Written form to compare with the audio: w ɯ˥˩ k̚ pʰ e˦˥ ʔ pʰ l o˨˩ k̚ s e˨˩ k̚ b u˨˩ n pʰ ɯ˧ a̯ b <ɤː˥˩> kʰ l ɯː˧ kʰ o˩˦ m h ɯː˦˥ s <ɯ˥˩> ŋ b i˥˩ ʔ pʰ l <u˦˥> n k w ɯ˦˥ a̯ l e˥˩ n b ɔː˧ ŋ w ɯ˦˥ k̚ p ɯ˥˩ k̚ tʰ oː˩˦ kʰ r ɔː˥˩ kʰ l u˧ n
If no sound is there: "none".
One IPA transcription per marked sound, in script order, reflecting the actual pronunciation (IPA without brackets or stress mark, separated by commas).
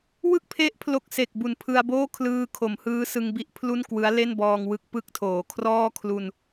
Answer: oː˥˩, ɯ˧, u˥˩